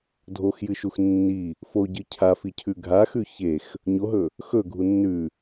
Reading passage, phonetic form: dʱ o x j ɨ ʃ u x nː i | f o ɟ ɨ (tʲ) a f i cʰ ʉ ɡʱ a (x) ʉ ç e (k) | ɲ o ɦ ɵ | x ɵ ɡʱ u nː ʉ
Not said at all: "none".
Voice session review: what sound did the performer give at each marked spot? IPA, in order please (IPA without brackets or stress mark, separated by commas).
cʰ, x, x